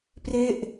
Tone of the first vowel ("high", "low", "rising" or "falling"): falling